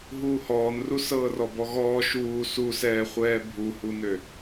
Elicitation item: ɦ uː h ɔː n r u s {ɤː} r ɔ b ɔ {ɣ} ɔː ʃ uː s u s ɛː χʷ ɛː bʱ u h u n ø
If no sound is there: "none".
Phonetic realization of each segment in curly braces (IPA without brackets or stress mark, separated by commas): ɤː, ɣ